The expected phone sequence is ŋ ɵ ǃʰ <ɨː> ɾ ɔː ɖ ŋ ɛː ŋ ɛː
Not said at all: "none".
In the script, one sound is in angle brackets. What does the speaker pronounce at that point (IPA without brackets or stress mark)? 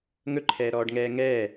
ɛː